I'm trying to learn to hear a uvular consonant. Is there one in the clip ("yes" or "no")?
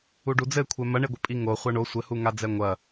yes